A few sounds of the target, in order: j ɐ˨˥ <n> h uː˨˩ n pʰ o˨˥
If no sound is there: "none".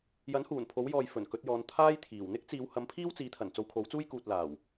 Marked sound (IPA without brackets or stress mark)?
n